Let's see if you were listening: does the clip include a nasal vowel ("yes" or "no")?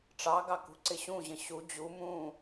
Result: yes